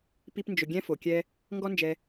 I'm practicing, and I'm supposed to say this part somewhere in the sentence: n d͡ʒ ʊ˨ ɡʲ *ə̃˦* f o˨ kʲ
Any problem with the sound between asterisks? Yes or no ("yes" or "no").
yes